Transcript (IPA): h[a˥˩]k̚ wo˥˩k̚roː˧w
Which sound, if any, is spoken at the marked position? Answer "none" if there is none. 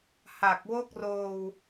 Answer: a˨˩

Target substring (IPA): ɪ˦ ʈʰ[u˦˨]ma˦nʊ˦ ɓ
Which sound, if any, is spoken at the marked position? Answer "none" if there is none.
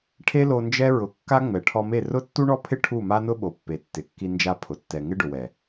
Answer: u˦˨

